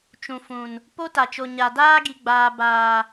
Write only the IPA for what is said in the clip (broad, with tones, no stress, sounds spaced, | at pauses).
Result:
t͡ʃ ũ˨ f ũ˨ n | p o˦ t a˨ t͡ʃ o˨ ɲ a˨ d aː˦ ɡ i˨ ɡ͡b aː˨ b aː˨